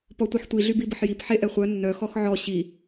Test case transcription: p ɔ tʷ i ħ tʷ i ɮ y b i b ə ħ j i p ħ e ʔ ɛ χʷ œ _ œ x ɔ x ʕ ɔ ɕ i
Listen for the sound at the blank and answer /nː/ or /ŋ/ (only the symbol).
nː